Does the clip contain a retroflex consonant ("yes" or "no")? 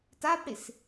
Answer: yes